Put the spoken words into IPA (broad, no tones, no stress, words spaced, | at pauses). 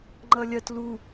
ŋ͡ǃʌlʲɜt lu